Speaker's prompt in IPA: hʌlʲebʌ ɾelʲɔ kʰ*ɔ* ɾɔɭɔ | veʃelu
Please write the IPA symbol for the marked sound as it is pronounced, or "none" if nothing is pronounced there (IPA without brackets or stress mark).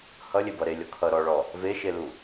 ʌ